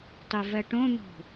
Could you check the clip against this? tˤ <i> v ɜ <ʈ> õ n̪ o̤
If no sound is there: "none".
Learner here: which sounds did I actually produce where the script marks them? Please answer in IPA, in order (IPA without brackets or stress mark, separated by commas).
i, ʈ